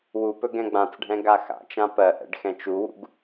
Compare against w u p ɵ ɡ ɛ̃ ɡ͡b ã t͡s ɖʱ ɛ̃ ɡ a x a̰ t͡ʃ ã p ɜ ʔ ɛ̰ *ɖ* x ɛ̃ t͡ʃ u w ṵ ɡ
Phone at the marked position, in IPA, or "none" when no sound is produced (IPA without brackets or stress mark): ɖ